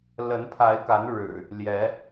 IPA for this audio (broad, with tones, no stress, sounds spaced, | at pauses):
l ə˨˦ n pʰ a˨˦ ɪ̯ k a˨˦ n ɻ ɻ̩˨˩ | l j ɛ˨˦